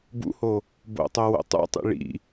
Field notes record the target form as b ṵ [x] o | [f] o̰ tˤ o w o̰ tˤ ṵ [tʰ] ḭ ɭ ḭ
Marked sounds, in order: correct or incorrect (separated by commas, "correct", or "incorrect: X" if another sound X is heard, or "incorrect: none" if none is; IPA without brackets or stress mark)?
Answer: incorrect: h, incorrect: b, incorrect: tˤ